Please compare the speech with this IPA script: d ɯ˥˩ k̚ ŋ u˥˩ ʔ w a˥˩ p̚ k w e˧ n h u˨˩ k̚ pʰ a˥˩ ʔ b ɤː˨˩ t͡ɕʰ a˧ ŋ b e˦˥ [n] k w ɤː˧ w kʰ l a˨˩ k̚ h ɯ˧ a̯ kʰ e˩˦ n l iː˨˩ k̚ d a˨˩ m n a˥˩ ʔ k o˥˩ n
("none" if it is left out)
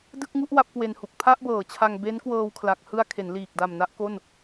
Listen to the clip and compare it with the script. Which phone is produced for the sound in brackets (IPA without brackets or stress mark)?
n